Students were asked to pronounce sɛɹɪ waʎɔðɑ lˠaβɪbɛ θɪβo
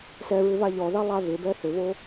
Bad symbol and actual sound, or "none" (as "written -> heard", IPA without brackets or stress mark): w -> β